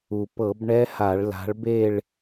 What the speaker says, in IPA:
u˩ p ɤ˧˩˧ b ɳ ɛ˦˥ h a˧˩˧ ɭ l a̤˨˦ ɭ b e˥˧ ɭ

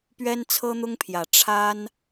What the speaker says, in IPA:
p ɥ ɛ˥ n t͡sʰ ɤ˥ n̪ ʊ˥ ŋ pʰ j ä˨˩ ʈ͡ʂʰ a˥ n

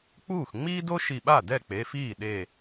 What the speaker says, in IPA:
k͡p uː˥˩ x ŋ͡m iː˥ d o˥ ʃ i˧˩ ɓ a˥˩ d ɛ˥˩ k͡p e˩˧˩ f iː˥˩ ɗ e˧˩

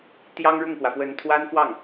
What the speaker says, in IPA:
t̪ j ɑ˥ ŋ ɻ ʊ˥˩ ŋ k w ä˩ f w ə˧˥ n t̪ʰ w a˥ n f w ɑ˥˩ ŋ

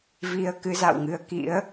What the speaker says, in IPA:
v i˧ ə̯ k ɨ˨˦ z a̰˧˨ w ŋ ɨ˨˦ ə̯ k ḭ˧˥ ə̯

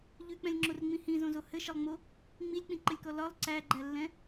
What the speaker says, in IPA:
ʎ ʉ k͡p ɛ̃ lʲ ŋ͡ǁ o r ŋ͡m ĩ h ĩ z õ z o h ɘ ʃ ɘ lˠ ŋ͡m o | ŋ͡m i lʲ k͡p ĩ ǃ ɘ lʲ k ɔ l ɒ lˠ ǀ æ ɡ͡ǃ æ lː ɛ̃

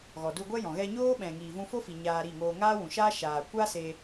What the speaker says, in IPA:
ɣ ɔ˨ d u˧ ɡʷ ɛ˦ j ɔ̃˨ ɣ ɛ˧ ɲ oː˦ ɓ ɛ̃˨ ŋ iː˨ v ũ˧ f o˦ f i˨ ɲ aː˧ ɾ i˦˨ ŋ oː˧ ŋ aː˦ w ũ˨ ʃ aː˦ ʃ aː˨ kʷ a˦ s e˧

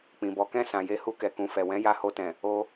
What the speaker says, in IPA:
k͡p ĩ˨ b ɔ˨˦ k ɛ̃˦˨ s ã˨ j e˨˦ h u˧ k ɛ˨ k ũ˨ f ɛ˨ w ɛ̃˨˦ j a˧ h o˧ t ɛ̃˨ | o˧

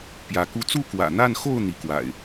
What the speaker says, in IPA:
p j ä˨˦ k u˦ t͡s u˥˨ k w ä̰˨˩ n̪ a˥˨ n x o˥˨ ʊ̯ n̪ i˨˦ k w a̰˨˩ ɪ̯

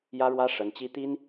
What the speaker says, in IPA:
j ä˥ ɻ w ä˥ ʂ ə˧˥ n t͡ɕ i˥ t̪ i˥ n

